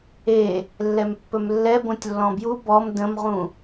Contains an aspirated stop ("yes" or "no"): no